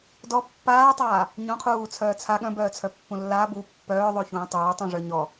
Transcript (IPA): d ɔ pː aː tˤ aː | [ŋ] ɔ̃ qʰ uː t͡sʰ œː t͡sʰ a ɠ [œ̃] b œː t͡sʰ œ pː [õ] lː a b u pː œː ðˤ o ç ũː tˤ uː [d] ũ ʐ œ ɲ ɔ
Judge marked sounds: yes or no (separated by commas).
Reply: no, yes, no, no